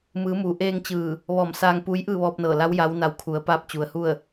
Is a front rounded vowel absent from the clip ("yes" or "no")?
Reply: yes